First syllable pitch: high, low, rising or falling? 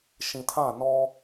low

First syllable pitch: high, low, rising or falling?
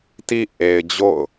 low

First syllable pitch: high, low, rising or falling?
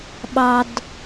low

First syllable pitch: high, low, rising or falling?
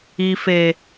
low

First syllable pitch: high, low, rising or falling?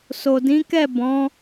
low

